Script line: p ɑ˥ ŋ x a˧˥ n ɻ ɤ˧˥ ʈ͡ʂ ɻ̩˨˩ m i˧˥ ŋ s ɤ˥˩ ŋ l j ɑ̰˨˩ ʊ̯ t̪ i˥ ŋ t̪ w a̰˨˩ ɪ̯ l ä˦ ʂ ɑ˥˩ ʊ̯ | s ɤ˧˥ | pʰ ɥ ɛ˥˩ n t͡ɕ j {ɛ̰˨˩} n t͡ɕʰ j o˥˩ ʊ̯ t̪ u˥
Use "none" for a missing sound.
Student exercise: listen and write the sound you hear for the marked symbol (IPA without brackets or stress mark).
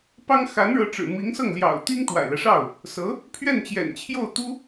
ɛ̰˨˩